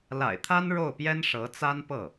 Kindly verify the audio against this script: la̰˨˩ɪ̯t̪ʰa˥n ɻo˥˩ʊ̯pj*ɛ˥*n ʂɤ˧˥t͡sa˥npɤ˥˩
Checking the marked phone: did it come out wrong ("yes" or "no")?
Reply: no